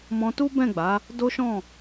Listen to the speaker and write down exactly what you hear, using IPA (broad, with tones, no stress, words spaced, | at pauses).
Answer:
mɔ̃˧tu˦bɛ̃˦˨ɡ͡ba˨˦ | do˦ʃɔ̃˦˨